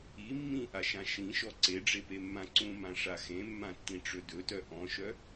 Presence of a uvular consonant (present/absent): absent